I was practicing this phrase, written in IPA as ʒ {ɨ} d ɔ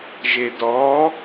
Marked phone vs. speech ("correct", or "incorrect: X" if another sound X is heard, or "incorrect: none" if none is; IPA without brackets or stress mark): incorrect: e